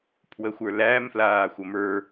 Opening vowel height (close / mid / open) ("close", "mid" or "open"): mid